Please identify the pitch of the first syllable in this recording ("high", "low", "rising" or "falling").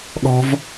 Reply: high